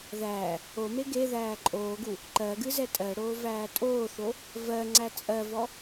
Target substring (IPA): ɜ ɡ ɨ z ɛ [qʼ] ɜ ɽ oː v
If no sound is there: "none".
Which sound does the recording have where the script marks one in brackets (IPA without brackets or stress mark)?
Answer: tʼ